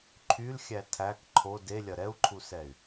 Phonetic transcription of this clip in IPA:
ǃʰ y l xʲ æ tʰ æ k ǃʰ o d e lʲ ɐ ɾ ɛ u̯ ǃʰ u s ɛ y̯

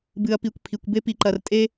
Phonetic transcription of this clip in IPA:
b ɨ˨ ɐ̯ p i˨ kʷ pʰ i˨ kʷ b e˦ p i˨ ǃ ɐ˨ r tʼ e˦

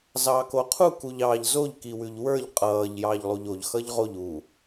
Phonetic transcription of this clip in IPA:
z ɑː k o qʰ u k u ʎ ɑː ʎ z o ʎ k i w ʉ ʎ w ə˞ ʎ qʼ ʌː ʎ j ɑː ʎ lˠ u ʎ o ʎ x ʌ ʎ ʁ o ʎ u

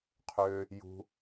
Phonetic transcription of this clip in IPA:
qʰ ø˧ | j ṳ˧

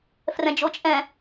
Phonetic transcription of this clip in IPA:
f r ɛ̃ d͡ʒ o t͡ʃʼ ɛ̃

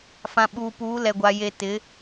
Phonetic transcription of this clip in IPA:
f ã˨ ɓ uː˨ p uː˨˦ l ɛ˨ ɡʷ a˨ j e˨ t ɪ˨˦

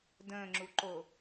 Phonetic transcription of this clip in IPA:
d ə̃ː ŋ͡ǁ u ǃ o

